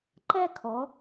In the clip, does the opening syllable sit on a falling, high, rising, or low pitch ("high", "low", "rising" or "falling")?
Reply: high